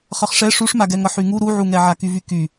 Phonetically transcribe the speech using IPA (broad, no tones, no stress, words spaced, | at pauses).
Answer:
χʌχʂɛ ʂuʂmaɡɛŋʌ ħyŋu ɾuʕuŋɛʕa kyvyky